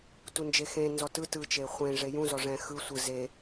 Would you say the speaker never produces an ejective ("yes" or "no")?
yes